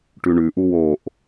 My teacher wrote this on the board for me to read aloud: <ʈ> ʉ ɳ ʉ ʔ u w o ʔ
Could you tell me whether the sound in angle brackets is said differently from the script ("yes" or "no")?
no